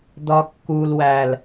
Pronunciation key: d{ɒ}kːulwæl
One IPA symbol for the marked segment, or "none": ɒ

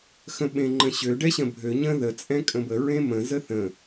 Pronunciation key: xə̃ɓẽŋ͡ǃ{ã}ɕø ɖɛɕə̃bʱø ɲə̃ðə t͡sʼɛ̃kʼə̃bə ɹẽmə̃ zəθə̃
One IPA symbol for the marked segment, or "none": ə̃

